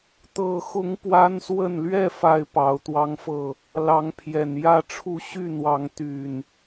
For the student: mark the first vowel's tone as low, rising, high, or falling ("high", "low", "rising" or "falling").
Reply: low